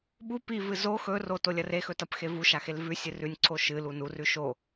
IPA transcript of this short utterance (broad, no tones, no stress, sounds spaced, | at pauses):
ɓ u p i v ɨ z o x ɵ r o t o lʲ ɐ r e x ɵ t ɐ p x e v u ʃ a x e l v ʉ sʲ ɨ r ʉ nʲ ǀʰ o ʃ ɨ l u n u r ʉ ʃ o